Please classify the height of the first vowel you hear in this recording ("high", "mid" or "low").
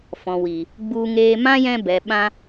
mid